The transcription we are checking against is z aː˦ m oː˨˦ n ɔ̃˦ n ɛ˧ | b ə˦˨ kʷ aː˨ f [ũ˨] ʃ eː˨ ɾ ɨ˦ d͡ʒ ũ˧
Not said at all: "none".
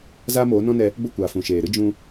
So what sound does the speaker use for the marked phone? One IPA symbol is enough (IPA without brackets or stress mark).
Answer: ũ˨